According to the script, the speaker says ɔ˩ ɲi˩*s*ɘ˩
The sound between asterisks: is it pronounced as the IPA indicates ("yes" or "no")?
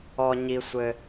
no